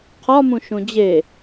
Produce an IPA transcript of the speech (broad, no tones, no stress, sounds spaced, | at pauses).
qʰ ɒ m ũ ʃ ũ d͡ʑ e